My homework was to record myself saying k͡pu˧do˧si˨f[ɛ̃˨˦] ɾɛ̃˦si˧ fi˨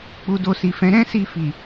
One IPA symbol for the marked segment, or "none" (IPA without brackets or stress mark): ɛ̃˨˦